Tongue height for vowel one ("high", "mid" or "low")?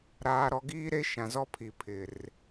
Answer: low